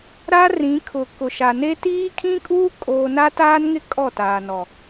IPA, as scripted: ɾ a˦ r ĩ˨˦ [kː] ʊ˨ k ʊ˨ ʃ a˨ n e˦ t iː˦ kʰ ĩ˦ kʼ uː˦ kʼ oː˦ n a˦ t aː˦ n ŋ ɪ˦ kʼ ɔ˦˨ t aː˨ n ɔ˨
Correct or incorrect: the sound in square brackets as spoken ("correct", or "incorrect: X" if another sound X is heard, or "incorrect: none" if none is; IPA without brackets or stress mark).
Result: incorrect: kʰ